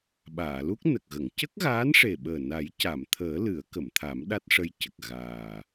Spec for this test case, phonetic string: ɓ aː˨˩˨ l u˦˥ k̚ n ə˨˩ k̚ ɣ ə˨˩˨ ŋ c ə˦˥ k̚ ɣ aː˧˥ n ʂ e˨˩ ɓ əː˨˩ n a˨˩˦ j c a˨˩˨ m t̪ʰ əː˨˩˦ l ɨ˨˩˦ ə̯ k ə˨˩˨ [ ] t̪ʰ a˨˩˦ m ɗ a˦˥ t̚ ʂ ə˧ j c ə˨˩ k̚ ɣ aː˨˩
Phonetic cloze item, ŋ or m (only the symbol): m